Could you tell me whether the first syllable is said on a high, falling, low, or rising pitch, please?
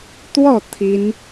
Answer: falling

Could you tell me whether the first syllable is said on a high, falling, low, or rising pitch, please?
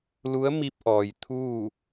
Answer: rising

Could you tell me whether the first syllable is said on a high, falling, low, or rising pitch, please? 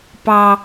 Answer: high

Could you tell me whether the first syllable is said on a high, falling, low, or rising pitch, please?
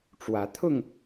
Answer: rising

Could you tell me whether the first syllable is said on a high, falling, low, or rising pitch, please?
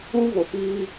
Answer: high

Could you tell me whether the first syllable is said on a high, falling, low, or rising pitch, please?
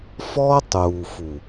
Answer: high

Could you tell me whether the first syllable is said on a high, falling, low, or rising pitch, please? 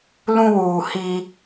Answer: high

